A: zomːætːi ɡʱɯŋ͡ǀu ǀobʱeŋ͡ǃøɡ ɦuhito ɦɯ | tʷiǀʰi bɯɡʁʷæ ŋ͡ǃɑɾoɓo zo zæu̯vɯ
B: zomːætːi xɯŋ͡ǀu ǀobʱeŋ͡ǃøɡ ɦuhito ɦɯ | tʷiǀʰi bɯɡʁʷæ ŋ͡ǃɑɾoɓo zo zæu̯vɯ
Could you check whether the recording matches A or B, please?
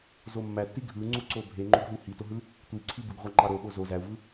A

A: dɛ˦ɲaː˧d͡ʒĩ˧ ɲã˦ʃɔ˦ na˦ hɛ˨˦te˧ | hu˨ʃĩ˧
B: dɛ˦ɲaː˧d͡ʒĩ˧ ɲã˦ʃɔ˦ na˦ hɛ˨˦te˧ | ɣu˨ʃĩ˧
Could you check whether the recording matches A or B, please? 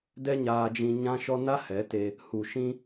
A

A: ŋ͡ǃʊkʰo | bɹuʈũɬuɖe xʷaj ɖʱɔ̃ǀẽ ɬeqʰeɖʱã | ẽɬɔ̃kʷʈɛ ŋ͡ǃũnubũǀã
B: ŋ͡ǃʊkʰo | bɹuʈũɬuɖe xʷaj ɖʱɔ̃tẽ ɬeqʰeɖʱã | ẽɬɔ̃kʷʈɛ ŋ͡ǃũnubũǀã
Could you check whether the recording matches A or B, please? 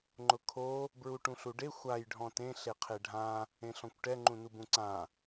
B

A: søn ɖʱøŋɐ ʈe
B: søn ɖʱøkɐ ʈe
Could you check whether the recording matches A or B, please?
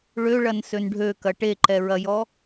B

